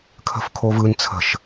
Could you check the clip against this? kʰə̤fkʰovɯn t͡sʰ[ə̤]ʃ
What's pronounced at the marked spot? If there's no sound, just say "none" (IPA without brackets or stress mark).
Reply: ə̤